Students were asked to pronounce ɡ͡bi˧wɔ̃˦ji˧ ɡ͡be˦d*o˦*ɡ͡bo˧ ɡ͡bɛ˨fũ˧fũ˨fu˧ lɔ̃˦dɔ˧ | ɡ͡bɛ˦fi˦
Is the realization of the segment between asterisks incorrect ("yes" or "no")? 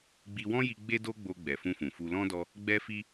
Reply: no